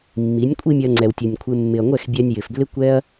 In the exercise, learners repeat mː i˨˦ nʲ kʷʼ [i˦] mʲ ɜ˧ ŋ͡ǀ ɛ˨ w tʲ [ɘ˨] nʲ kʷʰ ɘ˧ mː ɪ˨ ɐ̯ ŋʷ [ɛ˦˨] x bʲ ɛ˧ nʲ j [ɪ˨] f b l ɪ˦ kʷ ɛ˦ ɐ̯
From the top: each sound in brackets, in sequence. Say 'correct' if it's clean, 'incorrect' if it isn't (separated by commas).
correct, correct, correct, correct